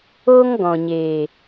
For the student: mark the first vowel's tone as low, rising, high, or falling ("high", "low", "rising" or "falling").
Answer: high